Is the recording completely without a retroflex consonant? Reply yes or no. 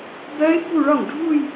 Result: no